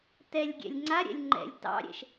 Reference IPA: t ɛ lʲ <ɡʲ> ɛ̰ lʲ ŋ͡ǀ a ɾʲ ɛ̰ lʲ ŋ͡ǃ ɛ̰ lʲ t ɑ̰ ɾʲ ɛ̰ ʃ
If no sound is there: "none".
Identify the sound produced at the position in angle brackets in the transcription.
ɡʲ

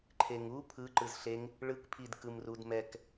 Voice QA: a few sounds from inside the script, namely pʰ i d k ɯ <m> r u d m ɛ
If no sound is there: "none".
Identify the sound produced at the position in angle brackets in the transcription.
m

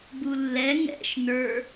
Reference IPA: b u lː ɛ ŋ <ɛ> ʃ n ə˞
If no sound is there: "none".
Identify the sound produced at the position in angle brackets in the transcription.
ɛ̰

